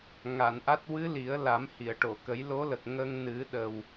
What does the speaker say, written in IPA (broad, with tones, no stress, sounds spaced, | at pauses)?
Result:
ŋ a˨˩˨ n ʔ a˦˥ t̚ w ɨ˧˥ l i˨˩˦ ə̯ l a˨˩˦ m h i˨˩˨ ə̯ ʈ o˨˩˨ k ə˨˩˦ j l o˧˥ l ə˨˩ k̚ ŋ ə˧ ŋ n ɨ˨˩˦ ɗ ə˨˩ w